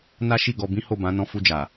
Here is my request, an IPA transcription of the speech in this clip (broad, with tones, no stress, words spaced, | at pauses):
na˦ʃi˦˨ɡɔ˧bĩ˦ ho˦˨bã˨˦ nɔ̃˧fu˧d͡ʒa˨